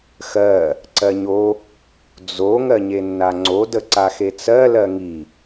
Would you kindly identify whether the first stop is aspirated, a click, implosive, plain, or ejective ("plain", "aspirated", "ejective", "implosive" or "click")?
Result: click